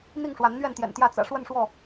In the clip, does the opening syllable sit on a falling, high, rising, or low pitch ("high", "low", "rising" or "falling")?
falling